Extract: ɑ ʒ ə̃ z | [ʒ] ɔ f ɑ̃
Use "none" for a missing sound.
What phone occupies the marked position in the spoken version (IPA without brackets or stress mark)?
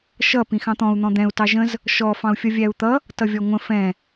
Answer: ʃ